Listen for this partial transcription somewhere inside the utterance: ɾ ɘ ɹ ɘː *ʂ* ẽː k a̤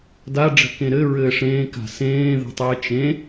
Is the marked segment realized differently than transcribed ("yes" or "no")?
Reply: no